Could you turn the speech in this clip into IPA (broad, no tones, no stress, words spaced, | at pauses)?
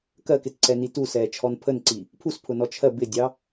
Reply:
kɜkɪtǀɛni tusɛːt͡ʃʰɔn pʰənǀi | pʰuspʰʊnɔ t͡ʃʰɜ bɪdʲɑ